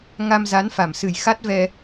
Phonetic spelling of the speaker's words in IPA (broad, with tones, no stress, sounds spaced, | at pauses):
ŋ a˧ m z a˨˦ n f a˨˩ m s ɨ˨˩ j x a˦˥ t̚ v ɛ˧